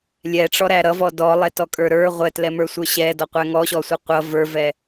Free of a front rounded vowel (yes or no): yes